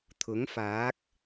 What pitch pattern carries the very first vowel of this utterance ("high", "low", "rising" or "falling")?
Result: rising